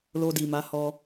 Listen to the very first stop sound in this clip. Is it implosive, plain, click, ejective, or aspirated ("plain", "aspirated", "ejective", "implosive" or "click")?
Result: plain